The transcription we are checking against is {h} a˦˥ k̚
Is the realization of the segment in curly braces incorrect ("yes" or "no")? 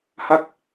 no